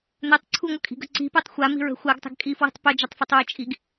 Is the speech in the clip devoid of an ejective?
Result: no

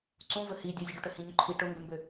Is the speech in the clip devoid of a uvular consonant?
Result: yes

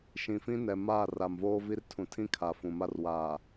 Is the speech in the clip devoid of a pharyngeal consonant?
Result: yes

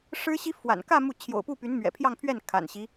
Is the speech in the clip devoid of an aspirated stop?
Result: no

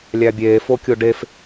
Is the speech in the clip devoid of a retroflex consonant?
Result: no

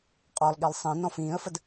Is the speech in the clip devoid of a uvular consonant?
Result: no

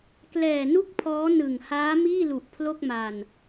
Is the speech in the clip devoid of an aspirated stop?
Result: no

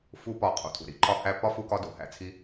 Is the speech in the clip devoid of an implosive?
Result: yes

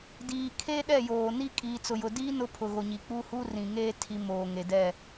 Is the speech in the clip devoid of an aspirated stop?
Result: no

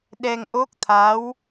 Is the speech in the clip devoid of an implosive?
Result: no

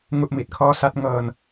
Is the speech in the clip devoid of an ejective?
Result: yes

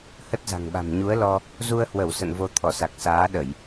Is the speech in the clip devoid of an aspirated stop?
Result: no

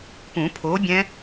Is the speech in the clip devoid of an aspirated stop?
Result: no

